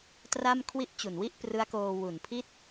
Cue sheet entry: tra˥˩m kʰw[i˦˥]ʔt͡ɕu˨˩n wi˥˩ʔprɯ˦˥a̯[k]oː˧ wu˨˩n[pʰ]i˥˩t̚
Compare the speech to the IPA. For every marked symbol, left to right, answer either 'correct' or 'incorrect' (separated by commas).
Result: correct, correct, correct